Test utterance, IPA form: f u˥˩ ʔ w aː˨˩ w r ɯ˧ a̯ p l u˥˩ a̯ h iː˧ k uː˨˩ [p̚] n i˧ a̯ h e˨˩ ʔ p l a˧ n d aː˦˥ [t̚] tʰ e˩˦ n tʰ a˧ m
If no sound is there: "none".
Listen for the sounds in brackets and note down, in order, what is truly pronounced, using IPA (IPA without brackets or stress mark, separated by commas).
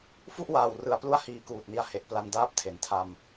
t̚, p̚